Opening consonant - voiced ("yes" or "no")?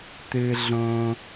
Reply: no